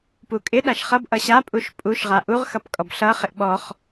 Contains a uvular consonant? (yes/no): yes